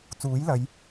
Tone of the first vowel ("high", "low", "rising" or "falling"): rising